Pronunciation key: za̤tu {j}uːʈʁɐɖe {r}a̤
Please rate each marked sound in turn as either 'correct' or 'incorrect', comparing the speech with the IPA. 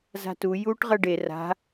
correct, correct

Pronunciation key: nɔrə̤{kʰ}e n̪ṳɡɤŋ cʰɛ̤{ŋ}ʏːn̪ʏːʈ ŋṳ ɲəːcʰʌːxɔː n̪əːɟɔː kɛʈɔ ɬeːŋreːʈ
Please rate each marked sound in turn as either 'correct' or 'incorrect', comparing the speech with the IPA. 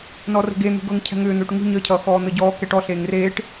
incorrect: ɡ, correct

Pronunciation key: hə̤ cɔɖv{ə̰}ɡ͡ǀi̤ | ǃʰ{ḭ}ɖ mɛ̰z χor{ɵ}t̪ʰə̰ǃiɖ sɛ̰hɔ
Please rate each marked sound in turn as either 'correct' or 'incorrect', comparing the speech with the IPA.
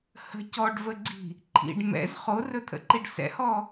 incorrect: ə, correct, correct

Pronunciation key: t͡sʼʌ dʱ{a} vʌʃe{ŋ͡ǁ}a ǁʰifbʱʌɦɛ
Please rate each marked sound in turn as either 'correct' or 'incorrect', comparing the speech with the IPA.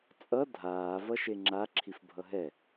incorrect: aː, correct

